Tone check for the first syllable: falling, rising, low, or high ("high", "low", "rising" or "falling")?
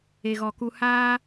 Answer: low